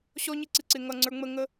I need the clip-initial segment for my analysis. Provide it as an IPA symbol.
ɕ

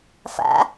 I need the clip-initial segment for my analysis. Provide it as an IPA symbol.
f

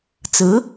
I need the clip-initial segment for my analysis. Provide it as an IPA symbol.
t͡s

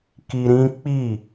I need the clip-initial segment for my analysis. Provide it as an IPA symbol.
k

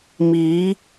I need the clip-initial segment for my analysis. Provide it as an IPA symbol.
m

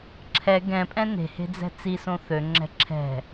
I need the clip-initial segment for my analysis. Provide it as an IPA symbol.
ǁʰ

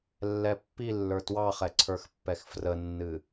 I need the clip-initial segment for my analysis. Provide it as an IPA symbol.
lː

